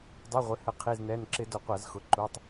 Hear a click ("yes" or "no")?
yes